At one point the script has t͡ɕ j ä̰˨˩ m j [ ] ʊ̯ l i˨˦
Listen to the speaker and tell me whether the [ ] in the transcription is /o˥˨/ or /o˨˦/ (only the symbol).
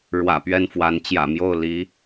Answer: o˥˨